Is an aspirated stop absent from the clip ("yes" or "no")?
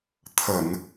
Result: no